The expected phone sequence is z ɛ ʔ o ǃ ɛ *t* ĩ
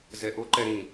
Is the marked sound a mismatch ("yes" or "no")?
yes